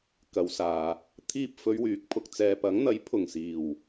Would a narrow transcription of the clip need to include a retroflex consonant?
no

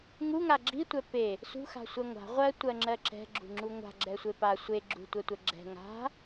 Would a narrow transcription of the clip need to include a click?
yes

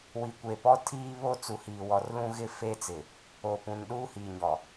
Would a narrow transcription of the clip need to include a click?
no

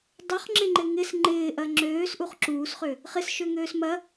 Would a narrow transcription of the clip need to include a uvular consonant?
yes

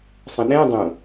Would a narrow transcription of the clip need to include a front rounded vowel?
no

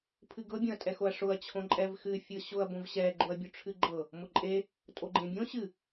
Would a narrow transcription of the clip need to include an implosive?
no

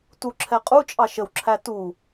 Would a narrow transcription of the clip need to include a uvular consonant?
yes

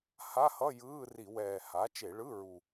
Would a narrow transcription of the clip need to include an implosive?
no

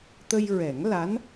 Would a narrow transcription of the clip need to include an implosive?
no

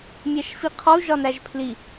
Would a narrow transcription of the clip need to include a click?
no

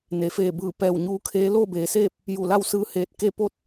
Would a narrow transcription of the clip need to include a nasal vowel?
no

